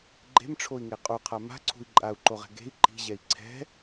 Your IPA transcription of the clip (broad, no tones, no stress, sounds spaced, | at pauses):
ɡ͡ǃ e̤ m ʈ͡ʂʰ o i̯ ŋ e qʼ u qʰ a m a̤ ǀʰ ṳ i̯ ǃʼ a u̯ ǃ o ʁ ɛ̤ ɡ e̤ i̯ ǃ i̤ ʑ ɛ i̯ ǀʰ ɛ̤